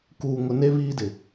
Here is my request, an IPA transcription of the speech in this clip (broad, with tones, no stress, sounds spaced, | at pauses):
k uː˨ ŋ ʊ˨ n e˦ β iː˦ d ɪ˨